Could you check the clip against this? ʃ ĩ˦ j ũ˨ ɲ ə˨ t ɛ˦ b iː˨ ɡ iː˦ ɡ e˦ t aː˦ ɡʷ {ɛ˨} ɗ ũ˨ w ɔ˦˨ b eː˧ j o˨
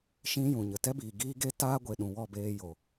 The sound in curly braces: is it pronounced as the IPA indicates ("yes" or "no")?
no